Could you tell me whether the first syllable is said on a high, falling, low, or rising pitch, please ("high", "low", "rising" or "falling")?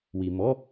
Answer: low